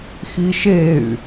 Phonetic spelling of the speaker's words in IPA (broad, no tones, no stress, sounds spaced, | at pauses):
x i ʃ e y̯